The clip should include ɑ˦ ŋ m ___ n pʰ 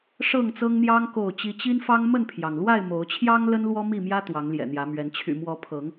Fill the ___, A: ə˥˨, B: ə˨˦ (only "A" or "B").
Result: A